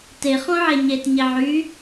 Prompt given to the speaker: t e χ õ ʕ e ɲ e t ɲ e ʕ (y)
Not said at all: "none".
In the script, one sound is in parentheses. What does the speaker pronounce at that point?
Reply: y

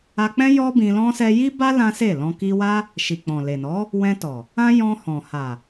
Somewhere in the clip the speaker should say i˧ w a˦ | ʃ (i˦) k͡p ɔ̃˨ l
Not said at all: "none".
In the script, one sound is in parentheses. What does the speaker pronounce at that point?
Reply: i˨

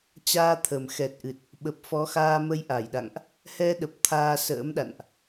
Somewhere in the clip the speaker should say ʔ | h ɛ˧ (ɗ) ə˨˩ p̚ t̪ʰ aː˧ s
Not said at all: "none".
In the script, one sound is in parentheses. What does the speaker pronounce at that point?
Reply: ɗ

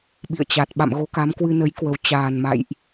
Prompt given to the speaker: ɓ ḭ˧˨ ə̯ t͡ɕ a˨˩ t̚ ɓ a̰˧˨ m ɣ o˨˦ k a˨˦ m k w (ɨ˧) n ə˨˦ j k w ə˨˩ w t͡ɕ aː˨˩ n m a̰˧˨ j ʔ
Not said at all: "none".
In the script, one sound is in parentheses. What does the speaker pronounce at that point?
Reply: ɨ˧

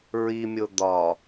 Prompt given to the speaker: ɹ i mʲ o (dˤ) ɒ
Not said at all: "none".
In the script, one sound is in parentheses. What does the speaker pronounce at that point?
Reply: d̪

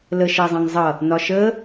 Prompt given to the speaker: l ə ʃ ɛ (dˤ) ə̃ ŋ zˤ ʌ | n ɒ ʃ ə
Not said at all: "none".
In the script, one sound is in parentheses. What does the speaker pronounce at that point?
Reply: zˤ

